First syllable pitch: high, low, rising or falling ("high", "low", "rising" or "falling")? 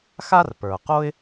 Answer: high